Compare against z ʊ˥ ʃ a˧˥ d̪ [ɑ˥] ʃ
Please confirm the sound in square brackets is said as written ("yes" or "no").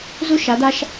no